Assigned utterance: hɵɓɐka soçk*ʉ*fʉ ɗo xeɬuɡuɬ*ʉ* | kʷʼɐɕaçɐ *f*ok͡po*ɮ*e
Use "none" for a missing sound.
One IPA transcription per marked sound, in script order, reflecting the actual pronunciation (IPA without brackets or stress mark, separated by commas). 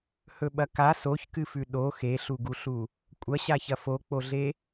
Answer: ɨ, u, f, ɮ